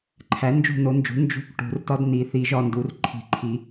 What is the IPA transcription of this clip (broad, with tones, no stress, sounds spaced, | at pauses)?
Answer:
ǃʰ æ˩˥ n d͡ʒ ṳ˦˨ n o˩˥ n d͡ʒ ṳ˩˥ n d͡ʒ ṳ˦˨ k ʈ ṳ˨˩˦ r t ɒ˦ d n i˨˩˦ θ i˨˩˦ ʒ ɒ˩˥ n d u˩˥ r ǃʰ i̤˨˩˦ ǃʰ i˨˩˦